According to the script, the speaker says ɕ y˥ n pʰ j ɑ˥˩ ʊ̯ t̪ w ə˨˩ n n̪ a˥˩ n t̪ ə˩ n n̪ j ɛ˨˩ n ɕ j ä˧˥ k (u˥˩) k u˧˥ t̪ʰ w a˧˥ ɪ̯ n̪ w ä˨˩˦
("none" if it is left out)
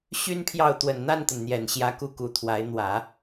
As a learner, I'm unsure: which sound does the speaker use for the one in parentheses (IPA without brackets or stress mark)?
u˥˩